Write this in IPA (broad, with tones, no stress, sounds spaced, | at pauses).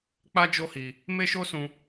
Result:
k͡p a˦ d͡ʒ o˦ h i˧ | m e˦ ʃ o˦ s ũ˧